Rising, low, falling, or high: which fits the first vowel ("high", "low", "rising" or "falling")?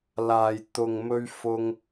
low